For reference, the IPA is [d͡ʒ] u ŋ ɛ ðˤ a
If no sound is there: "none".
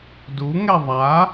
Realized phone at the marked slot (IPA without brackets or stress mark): d